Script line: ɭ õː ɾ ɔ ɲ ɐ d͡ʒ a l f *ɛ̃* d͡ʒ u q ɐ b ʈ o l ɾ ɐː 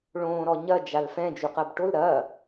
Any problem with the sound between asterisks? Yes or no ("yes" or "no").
no